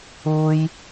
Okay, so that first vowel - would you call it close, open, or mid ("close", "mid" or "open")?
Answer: close